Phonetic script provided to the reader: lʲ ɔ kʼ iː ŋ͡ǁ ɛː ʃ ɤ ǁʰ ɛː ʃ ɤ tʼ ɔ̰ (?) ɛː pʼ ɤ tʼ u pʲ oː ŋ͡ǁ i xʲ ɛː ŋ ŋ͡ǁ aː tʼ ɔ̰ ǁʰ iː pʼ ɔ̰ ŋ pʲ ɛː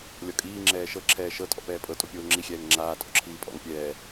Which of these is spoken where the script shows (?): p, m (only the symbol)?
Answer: p